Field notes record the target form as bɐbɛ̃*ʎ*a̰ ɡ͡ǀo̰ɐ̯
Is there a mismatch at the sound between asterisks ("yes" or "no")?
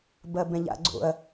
no